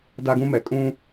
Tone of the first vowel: high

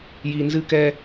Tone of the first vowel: low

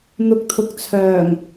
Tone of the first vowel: rising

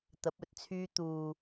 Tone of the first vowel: rising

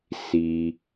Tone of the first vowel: low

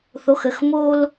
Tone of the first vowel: rising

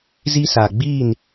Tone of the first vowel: high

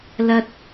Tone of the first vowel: high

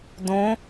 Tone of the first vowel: rising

